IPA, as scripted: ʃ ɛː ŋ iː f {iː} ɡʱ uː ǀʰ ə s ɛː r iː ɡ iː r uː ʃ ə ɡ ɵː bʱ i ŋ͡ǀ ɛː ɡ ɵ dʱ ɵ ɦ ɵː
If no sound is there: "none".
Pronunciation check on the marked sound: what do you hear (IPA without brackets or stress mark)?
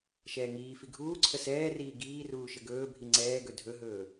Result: i